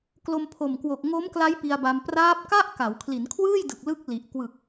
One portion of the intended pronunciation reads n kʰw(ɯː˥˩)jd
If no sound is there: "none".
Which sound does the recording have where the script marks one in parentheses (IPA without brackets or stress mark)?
ɯː˥˩